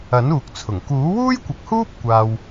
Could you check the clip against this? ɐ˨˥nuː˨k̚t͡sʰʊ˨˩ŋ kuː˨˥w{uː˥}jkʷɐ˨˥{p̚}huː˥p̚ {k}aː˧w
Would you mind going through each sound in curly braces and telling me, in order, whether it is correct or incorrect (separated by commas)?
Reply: correct, incorrect, incorrect